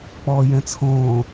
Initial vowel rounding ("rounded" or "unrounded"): rounded